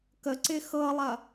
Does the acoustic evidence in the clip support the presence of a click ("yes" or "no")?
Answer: yes